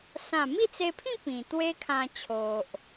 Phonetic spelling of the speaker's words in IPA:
sã˥˧ mi˥˧t͡se˧pʰĩ˥˧ pĩ˨˩t̪we˦kʰã˧t͡ɕʰo˨ʔ

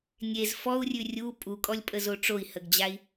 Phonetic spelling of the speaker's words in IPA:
nʲez fɔu̯rʲʉ rʲu pʼukʼɔlʲpʼəzo ʈ͡ʂoi̯həɡd͡ʑai̯

